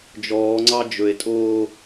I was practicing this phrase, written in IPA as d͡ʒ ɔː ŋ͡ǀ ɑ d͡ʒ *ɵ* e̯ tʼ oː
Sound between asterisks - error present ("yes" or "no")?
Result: no